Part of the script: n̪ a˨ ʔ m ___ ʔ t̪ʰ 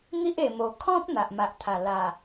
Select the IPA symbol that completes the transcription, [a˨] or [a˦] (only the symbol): a˨